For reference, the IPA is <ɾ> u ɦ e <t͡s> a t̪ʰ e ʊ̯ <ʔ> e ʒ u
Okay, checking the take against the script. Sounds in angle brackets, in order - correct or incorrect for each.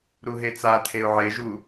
correct, correct, incorrect: ʕ

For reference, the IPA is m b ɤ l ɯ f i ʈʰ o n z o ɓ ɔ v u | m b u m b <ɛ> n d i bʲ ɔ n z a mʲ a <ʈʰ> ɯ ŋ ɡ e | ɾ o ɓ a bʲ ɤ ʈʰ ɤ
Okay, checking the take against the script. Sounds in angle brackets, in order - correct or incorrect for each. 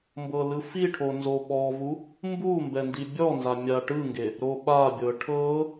correct, incorrect: ʈ

